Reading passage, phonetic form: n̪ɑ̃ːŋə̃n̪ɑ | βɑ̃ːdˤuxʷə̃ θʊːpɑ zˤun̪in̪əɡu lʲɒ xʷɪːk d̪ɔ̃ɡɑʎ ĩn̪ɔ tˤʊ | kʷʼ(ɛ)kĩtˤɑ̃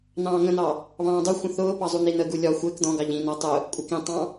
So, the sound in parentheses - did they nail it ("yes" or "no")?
yes